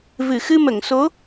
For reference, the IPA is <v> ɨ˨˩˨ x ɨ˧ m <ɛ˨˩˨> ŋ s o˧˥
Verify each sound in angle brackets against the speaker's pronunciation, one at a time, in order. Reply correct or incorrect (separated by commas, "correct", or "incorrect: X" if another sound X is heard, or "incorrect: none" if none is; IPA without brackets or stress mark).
correct, incorrect: ə˨˩˨